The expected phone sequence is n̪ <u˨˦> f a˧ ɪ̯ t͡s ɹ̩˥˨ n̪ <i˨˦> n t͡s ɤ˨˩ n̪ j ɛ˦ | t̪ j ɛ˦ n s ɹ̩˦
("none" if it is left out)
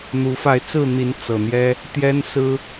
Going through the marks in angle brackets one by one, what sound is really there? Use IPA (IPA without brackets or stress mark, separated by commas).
u˨˦, i˨˦